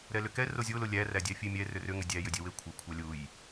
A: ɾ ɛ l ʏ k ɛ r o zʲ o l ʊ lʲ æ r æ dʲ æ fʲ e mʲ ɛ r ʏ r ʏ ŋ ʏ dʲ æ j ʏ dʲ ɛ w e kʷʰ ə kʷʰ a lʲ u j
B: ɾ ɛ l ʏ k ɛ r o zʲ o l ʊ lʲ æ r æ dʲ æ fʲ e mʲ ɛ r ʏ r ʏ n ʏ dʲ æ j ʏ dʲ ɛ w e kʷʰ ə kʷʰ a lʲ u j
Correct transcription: A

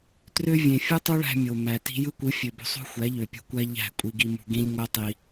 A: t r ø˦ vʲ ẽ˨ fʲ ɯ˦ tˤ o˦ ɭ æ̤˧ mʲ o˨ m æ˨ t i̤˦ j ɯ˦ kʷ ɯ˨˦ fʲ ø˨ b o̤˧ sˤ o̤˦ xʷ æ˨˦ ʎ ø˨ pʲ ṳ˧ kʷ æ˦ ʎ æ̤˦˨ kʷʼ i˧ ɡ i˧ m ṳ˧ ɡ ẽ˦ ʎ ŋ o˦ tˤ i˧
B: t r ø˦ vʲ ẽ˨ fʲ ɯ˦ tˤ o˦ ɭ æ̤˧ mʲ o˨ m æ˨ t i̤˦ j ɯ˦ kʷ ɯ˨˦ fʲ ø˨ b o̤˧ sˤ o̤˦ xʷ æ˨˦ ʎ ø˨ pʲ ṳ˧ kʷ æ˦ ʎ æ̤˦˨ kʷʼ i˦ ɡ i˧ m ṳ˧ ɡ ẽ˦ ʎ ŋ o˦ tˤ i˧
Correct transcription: A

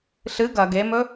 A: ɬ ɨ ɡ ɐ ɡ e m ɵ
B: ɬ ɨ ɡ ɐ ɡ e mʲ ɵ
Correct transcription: A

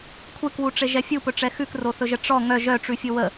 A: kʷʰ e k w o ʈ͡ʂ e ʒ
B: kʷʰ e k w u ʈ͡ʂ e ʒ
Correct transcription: B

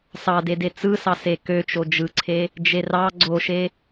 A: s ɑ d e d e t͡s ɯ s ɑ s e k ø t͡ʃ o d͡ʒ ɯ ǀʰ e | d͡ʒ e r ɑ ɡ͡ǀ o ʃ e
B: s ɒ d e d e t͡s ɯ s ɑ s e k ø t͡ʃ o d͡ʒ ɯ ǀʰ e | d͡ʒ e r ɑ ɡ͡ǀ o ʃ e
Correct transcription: A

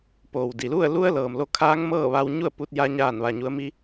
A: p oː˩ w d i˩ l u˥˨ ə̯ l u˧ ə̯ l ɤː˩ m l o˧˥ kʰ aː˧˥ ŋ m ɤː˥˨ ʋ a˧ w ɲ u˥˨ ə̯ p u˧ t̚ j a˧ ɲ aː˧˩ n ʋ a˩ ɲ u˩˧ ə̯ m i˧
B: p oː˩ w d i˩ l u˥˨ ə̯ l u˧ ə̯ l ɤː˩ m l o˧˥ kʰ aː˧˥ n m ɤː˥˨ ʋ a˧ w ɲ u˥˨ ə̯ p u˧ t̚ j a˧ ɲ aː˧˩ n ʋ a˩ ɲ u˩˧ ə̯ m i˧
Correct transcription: A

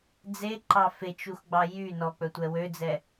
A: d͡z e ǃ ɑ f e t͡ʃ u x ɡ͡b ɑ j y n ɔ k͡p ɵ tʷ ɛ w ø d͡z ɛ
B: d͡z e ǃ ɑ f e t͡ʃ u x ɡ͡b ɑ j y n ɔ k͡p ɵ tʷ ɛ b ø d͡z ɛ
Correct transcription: A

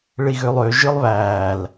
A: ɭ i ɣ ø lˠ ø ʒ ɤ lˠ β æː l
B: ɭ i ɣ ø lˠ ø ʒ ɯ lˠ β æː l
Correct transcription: B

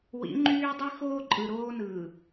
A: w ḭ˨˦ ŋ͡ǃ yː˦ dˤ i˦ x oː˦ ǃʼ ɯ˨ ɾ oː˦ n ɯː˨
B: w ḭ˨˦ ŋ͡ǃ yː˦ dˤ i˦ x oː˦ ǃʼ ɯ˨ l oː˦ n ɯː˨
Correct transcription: A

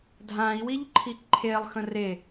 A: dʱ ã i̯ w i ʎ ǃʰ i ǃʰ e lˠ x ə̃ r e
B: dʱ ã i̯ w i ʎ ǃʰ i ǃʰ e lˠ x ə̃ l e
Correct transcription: A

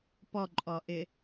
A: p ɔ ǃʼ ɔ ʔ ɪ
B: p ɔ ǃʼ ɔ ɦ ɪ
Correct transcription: A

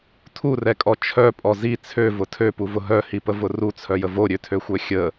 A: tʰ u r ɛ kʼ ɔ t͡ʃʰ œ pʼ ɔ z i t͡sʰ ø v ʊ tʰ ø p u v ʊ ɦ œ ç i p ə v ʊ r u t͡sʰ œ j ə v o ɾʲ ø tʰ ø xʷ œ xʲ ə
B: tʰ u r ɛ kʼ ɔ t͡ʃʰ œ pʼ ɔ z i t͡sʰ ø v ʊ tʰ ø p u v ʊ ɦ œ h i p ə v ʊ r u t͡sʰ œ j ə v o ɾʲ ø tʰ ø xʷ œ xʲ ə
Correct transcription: B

